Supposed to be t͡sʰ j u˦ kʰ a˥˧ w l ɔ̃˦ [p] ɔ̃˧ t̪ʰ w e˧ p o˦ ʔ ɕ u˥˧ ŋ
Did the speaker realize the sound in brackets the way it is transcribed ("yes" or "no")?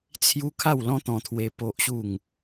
no